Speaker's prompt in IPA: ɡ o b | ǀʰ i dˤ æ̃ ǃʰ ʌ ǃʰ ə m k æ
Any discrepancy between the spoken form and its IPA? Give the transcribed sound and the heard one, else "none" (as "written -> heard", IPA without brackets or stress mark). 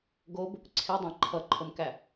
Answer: none